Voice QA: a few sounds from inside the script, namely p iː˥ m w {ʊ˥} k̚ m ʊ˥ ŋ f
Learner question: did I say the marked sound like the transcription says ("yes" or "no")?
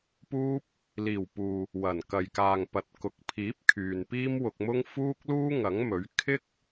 no